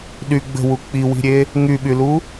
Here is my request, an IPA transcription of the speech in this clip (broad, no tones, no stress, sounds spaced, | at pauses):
ɗ y ɡ͡b ə̤ w u k͡p i w i̤ ɾʲ e | ŋ y ɓ y l u